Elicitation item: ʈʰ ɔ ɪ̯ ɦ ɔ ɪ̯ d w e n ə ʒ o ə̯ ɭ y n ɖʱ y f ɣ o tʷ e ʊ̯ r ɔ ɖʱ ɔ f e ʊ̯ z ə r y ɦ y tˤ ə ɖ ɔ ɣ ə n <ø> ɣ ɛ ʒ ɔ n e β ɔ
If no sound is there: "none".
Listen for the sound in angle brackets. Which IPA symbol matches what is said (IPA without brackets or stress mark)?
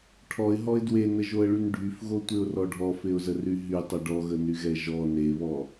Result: y